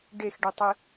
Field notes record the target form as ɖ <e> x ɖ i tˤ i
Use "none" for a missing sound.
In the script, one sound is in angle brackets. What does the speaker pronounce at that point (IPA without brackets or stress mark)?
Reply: e